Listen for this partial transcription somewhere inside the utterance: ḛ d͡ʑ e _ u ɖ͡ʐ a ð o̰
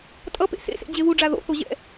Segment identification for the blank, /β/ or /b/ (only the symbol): β